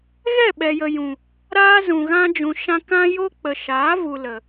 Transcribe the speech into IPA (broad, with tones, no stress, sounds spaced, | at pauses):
ɣ ɛ˦˨ ɓ ɛ˨ j ə˨ j ũ˨ | ɾ aː˦ z ũ˨ ɣ ã˧ d͡ʒ ũ˨ ʃ ã˧ k ã˦ j o˦ k͡p ə˨ ʃ aː˨˦ v u˨ l ə˨